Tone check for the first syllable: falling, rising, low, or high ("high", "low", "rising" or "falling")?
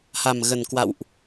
low